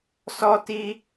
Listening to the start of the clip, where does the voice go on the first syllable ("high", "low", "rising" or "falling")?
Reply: high